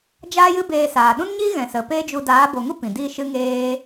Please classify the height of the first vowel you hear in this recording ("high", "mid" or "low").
low